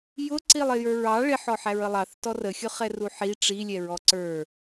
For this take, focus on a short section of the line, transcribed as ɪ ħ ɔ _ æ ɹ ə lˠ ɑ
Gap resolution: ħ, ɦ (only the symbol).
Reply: ħ